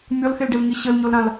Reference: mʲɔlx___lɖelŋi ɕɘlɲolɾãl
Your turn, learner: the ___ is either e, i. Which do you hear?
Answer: e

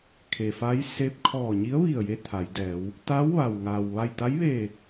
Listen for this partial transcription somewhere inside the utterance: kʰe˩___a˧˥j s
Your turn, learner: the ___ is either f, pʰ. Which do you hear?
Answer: f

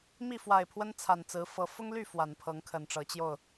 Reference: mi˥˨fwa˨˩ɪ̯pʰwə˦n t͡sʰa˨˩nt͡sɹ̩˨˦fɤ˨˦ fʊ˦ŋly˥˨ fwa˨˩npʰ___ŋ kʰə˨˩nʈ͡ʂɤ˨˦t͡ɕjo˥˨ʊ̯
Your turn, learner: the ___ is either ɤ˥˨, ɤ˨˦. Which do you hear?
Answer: ɤ˨˦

